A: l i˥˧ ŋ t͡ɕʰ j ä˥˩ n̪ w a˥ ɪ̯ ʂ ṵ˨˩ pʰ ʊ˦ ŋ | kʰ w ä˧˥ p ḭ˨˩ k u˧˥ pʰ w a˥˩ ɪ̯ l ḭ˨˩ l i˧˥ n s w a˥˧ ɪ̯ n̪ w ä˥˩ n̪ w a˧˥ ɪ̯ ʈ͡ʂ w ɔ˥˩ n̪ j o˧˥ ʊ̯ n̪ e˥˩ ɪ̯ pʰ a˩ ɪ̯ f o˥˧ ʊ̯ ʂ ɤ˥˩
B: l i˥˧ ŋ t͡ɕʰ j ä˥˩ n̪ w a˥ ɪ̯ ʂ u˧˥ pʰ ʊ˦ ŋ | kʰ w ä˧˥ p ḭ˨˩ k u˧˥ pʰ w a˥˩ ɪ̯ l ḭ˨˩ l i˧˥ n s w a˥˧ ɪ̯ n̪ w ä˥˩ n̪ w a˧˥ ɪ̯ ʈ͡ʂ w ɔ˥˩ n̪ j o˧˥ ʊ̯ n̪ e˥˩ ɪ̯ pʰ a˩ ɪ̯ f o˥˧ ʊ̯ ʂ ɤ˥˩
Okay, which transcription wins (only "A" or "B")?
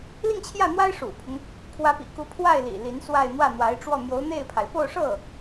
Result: A